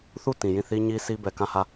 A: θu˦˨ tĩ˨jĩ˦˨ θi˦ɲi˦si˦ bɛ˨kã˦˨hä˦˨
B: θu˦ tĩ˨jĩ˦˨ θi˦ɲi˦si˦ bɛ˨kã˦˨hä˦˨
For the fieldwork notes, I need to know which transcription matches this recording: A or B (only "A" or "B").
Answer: A